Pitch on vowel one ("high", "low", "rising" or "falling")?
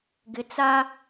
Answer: low